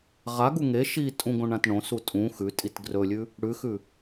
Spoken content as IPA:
ʁ a ɡ u ŋ e ʃ i tʼ ũ ɡ õ ɳ ã t ɳ õ s u tʼ ũ x ʉ tʼ i t ɡ r ɵ lʲ ʉ | ɽ ʉ x ʉ

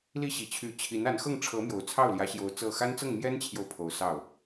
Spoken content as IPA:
l i˥˩ ɕ i˨˩ t͡ɕʰ y˧˥ t͡ɕʰ i˧˥ n a˧˥ n x ɤ˥˩ ŋ ʈ͡ʂʰ ɤ˧˥ m j o˨˩ ʊ̯ t͡sʰ ɑ˥˩ ʊ̯ l j ä˧˥ ɕ j o˧˥ ʊ̯ t͡s ɤ˥˩ x a˥ n t͡s ɤ˥˩ ŋ m j ɛ˥ n t͡ɕʰ j o˨ ʊ̯ pʰ o˧˥ ʊ̯ s ɑ˥˩ ʊ̯

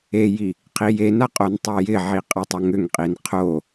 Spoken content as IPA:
e j i | qʰ i j e n a qʼ o n tˤ e j ɪ ʕ i qʼ a tˤ o ŋ ʏ ŋ qʼ i n qʰ o

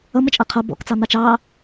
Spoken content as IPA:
ʌ m ə t͡ʃʼ ʌ qʰ ʌ b ɔ̰ k t͡s ɑ n̪ ɑ t͡ʃ ɑ

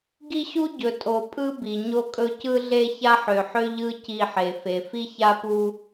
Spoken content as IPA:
ɡ i˦ ɕ u˦ ɟ ɵ˨ tʼ o˨ pʼ ɯ˦ b i˨ ɲ o˦ kʼ ɵ˦ c ɯ˦ ɮ e˦ ç a˦ ħ ø˨ ħ ø˦ ʎ ɯ˦ c i˦˨ ħ e˨ f e˨ f i˦ ç a˦ p u˦

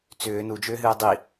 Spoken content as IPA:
t͡s ʏː n u d͡ʒ ʏː ɦ ɨː dˤ i

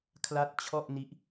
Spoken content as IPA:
kʰ l a˦˥ t̚ t͡ɕʰ ɔ˥˩ ʔ n i˦˥ ʔ

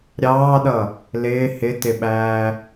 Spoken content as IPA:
ɾʲ ɑː ɗ ʌ | l ɪː h ɪ t ɪ ɓ æː

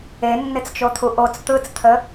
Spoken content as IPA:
e nː ɪ t͡s t͡ʃ o t̪ʰ u ʔ o t͡s t̪ ɯ t͡s t̪ʰ ə

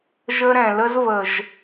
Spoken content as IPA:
ʒ ə˦ ɾ ɛ̃˨ l ə˦ z v ə˨ ʒ

